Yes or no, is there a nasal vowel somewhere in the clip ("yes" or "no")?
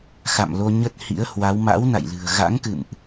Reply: no